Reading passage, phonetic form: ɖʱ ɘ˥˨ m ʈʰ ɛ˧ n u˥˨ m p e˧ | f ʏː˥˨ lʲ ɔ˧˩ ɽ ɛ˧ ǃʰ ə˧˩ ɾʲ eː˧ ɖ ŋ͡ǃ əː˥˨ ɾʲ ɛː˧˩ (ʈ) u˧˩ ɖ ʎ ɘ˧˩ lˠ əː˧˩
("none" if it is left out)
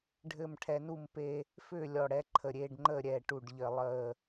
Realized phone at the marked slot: ʈ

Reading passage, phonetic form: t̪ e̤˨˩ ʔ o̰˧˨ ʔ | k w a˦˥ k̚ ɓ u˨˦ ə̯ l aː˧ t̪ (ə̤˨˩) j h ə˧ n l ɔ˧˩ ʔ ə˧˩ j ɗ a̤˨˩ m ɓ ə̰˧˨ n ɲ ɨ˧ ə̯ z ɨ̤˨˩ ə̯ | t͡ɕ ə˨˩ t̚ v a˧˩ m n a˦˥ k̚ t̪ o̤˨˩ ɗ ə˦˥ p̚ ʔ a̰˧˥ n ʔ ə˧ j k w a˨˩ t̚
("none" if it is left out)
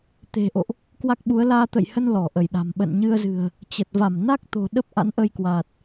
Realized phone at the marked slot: ə̰˧˨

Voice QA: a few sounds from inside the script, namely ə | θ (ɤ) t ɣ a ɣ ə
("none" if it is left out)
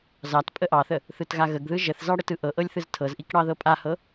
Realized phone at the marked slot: ɯ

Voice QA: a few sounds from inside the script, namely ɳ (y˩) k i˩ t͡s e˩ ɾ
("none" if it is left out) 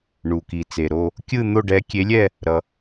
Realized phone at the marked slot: u˩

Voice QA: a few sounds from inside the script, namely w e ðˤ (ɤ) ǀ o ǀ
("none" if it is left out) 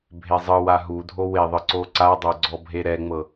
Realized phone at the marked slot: ɯ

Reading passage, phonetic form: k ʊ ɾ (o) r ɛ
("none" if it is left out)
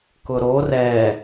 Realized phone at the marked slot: o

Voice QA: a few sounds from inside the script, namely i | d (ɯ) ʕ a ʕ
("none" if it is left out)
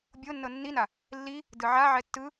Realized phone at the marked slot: ɯ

